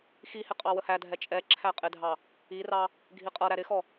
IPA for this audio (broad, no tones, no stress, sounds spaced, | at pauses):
x i h ɪ qʼ ɑ w ə h æ dʱ ɛ t͡ʃʼ ɛ ǁʰ æ qʼ ɪ dʱ ɑ | i r ɑ | ɡʱ i qʼ ʌ ɾ æ ɾ ɪ x ɔ